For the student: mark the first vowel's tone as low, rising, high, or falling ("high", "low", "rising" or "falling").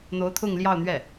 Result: rising